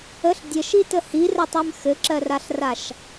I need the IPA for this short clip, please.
ə ɬ dʲ ɘ ʃ i t ə h i r ɜ tˤ ɜ m x ɘ ǁ ɜ r a ɬ r a ʃ

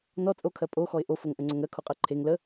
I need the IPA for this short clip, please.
n ɔ t͡sʼ o kʰ ɜ pʼ o x ɔ ɪ̯ ʔ o f o ŋ ʔ ə ŋ͡ǀ o ŋ ɜ kʰ o qʼ ɜ ǃʰ e ŋ l ə

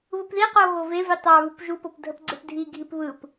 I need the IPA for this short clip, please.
β ɯ p ð i q o ɣ o v e v i tˤ ɑ β u p ʒ u p o p dʱ ə p ɡ͡ǀ e p dʱ i ɡʱ i p β ɯ p

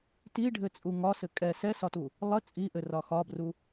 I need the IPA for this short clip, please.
t i ɖʱ ɘ t͡sʼ u ŋ ɒ s ɘ kʼ ɛ s ɛ s ɒ t u | lˠ ə t͡sʼ i ʔ ɘ r ɒ x ɒ b r u

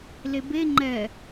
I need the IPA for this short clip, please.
l e b e ŋ͡ǃ ɛ

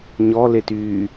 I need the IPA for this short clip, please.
ɲ ɔ l e t yː

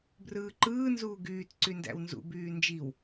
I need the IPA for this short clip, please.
b r ɯː ǃ ɯː n z uː ɡ yː t ǀ y n d æ̰ w n z ṵ b yː n d͡ʒ i w

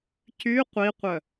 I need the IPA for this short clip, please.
c y qʷ i qʷ œ

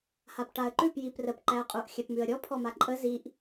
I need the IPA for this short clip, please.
h a p ʈ a ə̯ ǃ ʉ p j i p r ə p ǃ æ ə̯ qʼ u ʔ xʲ æ p m ʉ ə̯ ɾʲ ɔ pʰ ɔ m a ǃʼ ə z i ʔ

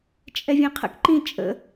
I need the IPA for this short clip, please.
t͡ʃʼ ɛ vʲ ɛ̃ qʰ ə̰ k ǃ ĩ t͡ʃʼ ə̰

